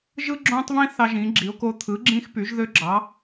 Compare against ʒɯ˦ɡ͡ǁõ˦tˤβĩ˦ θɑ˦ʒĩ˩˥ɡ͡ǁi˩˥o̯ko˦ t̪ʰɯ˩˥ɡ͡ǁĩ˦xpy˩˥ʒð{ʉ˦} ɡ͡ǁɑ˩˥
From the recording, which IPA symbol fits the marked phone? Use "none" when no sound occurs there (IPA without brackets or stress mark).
ø˦